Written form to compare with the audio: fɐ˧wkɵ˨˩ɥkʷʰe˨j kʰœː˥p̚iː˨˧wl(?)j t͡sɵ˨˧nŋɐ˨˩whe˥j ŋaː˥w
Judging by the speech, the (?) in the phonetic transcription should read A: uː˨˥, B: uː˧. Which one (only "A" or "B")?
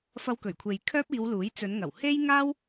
A